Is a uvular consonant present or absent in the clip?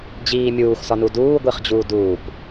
present